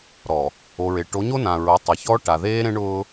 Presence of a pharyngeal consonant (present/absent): absent